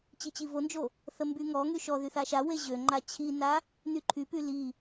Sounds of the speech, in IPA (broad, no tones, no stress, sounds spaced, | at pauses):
t͡ɕ i t͡ɕ i v o n d͡ʒ o | θ ə m b y ŋ ɔ ŋ y ʃ ɔ ð y θ a ʃ a w e ʑ ø ŋ͡ǃ a t͡ɕʰ i n a | n y ǃʰ y p y l i